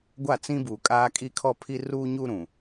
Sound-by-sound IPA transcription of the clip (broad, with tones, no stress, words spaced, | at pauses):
ɡʷa˦˨t͡sĩ˦buː˨ kʼaː˦kʼi˦kʰɔ˦pʰi˦ ruː˦ɲu˦ ɾũ˨